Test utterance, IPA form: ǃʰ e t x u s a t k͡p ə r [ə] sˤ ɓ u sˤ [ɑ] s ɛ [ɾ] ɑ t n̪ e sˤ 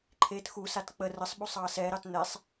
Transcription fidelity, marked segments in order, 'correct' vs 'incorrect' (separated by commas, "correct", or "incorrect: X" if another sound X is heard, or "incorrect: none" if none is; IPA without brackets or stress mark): correct, correct, correct